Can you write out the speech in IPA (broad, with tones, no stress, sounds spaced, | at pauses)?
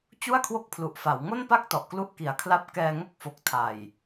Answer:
t͡ɕ u˥˩ a̯ kʰ w o˦˥ k̚ pʰ l u˨˩ ʔ f a˩˦ w ŋ o˥˩ n p a˥˩ k̚ t ɔ˨˩ ʔ k l u˥˩ ʔ k i˩˦ a̯ kʰ l a˦˥ p̚ k ɛː˧ ŋ o˦˥ k̚ f o˨˩ k̚ tʰ a˨˩ j